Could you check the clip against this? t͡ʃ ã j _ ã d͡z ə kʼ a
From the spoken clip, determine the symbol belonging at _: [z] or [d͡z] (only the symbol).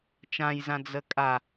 z